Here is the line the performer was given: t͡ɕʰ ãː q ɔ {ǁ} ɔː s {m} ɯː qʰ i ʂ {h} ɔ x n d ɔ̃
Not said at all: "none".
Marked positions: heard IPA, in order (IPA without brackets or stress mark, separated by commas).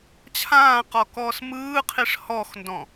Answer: k, m, h